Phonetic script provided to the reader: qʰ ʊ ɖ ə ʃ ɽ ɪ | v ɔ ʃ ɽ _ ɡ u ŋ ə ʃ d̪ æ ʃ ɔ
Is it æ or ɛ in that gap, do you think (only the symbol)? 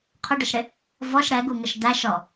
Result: ɛ